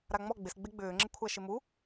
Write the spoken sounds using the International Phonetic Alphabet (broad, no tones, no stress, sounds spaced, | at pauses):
ɾ a ŋ͡m ɔ ɡ͡b ɪ s ɡ͡b e ɡ͡b ʏː ŋ͡ǁ ɪ kʷʰ a ʃ ɪ m u